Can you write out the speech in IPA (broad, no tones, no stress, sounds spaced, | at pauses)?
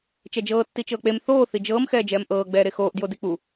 t͡ʃ ɛ d͡ʒ ɤː tː i t͡ʃ ɤː k͡p e m θ oː θ i d͡ʒ ɤː m x ɛː d͡ʒ ɛː m ʔ ɤː ɡ͡b ɛː ɾ e x oː ʔ d j o d i k͡p u